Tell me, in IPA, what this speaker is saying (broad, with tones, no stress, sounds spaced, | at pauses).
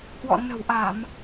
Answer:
h w ɔ̰˧˨ n ə̤˨˩ w ʔ a˧˩˨ m